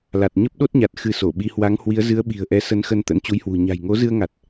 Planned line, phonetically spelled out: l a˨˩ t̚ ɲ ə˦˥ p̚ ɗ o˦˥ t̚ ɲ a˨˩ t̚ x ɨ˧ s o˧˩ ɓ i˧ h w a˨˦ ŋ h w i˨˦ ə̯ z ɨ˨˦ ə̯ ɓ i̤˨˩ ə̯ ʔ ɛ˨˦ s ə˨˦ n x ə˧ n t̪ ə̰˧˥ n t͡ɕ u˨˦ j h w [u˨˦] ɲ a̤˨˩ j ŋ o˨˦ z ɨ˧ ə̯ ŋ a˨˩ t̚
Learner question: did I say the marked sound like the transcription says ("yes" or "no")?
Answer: no